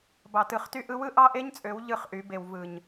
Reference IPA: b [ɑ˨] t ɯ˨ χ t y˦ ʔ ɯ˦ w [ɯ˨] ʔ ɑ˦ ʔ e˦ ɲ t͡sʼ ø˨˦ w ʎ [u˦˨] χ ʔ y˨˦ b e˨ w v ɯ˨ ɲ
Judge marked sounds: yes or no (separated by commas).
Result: yes, no, no